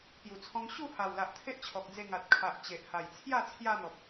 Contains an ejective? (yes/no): no